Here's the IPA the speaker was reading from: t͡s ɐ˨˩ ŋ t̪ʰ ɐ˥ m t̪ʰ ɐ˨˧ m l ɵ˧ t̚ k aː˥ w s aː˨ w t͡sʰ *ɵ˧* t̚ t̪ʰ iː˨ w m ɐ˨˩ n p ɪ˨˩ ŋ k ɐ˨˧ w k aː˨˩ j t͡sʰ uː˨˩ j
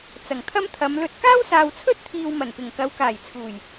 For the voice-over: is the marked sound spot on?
no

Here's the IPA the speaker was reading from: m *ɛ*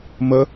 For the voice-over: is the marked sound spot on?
no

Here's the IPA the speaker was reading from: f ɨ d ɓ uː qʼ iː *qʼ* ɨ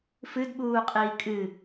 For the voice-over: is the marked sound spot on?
no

